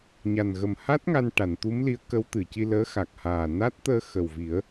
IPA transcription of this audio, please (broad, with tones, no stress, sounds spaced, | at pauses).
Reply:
ɲ a˨˩ n ɣ ə˨˩ m h a˦˥ t̚ ŋ a˧ n ʈ a˨˩˨ n t̪ u˧˥ m l i˧˥ ə̯ k ə˧˥ w t̪ ɨ˨˩˨ c i˧ l əː˧˥ x a˨˩ k̚ h aː˨˩ n a˦˥ t̚ t̪ əː˧ x ə˨˩ w v i˨˩˦ ə̯